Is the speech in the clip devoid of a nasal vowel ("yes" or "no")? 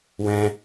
no